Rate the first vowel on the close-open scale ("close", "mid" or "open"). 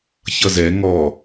mid